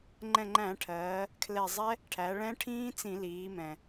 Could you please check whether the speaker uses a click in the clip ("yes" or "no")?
yes